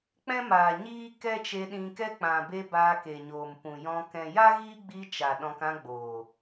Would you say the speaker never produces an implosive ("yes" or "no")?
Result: no